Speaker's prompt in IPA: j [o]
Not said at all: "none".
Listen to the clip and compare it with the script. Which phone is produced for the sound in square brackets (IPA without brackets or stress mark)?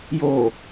o